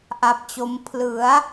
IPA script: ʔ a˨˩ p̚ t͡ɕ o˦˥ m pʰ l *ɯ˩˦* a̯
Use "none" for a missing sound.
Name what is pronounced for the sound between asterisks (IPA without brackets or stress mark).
ɯ˩˦